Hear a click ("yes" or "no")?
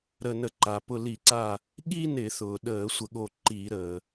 yes